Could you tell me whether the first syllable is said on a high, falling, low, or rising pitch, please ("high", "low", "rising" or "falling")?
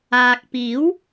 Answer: low